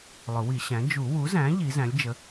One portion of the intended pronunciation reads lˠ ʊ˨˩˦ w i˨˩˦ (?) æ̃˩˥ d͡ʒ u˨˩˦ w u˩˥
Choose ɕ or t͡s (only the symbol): ɕ